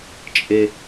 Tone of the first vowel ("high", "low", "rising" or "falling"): low